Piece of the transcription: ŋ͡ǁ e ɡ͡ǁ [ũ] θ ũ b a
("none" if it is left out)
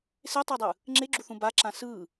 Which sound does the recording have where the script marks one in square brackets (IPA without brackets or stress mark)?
u